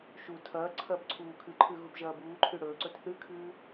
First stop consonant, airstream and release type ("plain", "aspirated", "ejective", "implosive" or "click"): aspirated